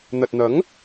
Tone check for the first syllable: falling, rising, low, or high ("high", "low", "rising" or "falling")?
low